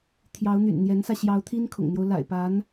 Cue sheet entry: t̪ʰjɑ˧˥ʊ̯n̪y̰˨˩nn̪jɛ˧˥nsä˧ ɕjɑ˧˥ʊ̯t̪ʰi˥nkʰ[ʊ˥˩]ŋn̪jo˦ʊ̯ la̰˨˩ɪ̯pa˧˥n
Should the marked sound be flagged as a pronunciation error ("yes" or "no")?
yes